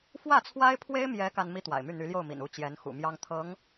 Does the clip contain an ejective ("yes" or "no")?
no